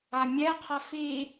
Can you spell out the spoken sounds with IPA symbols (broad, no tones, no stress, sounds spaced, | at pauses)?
a mʲ ɛ qʰ a f i